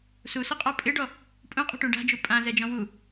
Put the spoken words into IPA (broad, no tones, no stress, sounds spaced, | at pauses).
s u s ʊ qʼ ɔ pʼ ɪ ɖ ɔ | pʼ ũ qʼ ṳ ʈ ũ ɖ a̤ d͡ʒ u pʼ ã z ɛ d͡ʒ ɔ̃ w u